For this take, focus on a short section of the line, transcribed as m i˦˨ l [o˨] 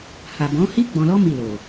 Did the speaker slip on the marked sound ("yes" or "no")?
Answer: no